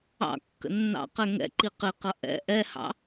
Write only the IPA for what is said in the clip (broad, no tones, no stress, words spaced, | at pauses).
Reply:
ɑ̰kːə̰ nːɑ̰qɛ ŋɛ̰ǃi qɪqʌ ʔɛ̰ ʔɛhɑ̰